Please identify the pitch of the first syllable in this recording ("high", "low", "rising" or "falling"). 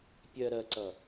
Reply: low